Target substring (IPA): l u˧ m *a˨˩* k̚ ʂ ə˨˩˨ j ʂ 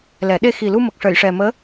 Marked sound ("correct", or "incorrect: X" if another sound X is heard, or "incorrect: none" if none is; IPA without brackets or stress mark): incorrect: ə˨˩